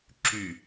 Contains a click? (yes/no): yes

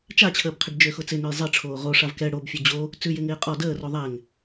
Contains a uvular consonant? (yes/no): yes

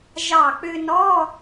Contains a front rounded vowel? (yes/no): yes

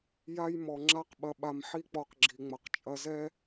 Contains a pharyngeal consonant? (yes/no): yes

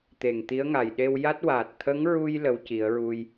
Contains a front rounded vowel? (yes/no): no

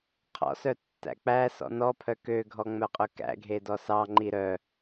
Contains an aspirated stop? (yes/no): yes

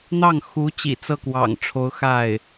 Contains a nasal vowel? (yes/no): no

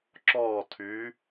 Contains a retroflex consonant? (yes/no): no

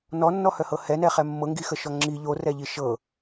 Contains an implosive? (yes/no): no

